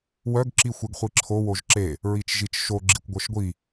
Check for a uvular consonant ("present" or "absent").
present